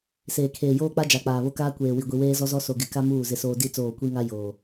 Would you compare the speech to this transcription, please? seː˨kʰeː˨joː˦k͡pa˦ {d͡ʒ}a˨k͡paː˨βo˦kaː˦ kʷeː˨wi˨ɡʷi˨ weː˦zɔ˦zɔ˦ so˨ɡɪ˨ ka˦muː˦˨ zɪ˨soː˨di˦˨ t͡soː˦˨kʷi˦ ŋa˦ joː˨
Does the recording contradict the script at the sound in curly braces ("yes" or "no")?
no